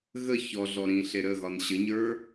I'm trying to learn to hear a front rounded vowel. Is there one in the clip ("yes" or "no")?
no